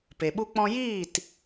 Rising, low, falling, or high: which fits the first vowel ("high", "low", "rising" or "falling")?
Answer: low